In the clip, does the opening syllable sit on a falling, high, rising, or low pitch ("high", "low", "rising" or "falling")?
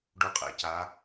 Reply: low